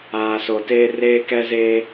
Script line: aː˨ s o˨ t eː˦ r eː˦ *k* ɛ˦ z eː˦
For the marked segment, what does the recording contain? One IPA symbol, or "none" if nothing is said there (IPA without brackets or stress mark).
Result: k